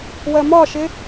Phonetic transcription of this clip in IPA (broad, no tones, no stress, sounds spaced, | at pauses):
w ɜ m ɒ ʃ ɪ